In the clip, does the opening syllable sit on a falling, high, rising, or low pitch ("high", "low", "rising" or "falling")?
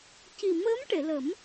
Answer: low